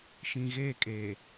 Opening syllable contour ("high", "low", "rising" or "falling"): low